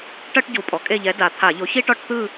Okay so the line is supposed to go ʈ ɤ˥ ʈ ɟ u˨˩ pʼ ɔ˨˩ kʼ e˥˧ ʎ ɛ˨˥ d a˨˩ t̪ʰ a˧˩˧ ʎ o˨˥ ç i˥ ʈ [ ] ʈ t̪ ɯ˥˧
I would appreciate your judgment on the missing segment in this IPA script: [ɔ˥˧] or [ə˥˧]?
ɔ˥˧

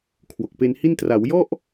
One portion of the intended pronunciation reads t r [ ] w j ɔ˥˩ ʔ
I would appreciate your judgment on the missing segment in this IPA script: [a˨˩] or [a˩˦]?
a˩˦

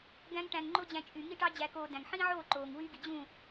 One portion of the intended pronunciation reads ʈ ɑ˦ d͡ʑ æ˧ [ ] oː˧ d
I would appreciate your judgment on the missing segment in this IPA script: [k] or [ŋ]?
k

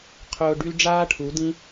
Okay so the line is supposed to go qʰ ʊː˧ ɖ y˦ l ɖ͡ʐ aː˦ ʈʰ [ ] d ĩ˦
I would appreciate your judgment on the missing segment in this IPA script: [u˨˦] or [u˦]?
u˨˦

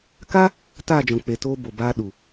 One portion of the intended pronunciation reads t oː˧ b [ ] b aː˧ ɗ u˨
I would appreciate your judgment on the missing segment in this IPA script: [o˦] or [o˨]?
o˨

